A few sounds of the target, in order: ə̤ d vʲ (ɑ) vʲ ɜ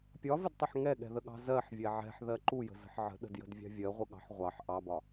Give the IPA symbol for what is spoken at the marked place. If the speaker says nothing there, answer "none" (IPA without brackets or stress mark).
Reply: ɑ̤